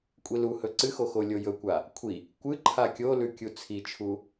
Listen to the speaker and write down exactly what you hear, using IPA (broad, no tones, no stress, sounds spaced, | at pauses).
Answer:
kʷʼ i l u h ɵ ǀ ɨ x o x o lʲ o j ɵ kʷ a | kʷʰ i | kʷ ɨ ǃʰ a kʲ o l ʉ kʲ u t͡sʰ i t͡ʃʰ u